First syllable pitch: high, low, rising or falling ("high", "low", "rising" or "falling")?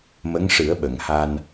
rising